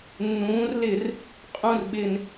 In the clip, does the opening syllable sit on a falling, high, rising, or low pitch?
rising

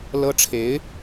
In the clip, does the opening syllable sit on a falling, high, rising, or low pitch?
high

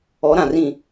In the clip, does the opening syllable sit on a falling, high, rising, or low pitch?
rising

